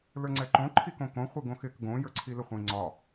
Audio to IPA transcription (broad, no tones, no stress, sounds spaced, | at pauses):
l ə˞ ŋ͡ǀ ɛ ǃ õ ǃʰ i k õ k õ χʷ i ɡ õ x ɪ k ɡ õ j ə˞ ǀʰ i l ɪ χʷ ĩ ŋ͡ǀ ɒ